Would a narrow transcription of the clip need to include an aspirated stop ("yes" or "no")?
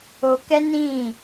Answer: no